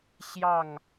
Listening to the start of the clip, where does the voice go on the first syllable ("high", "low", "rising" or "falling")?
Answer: falling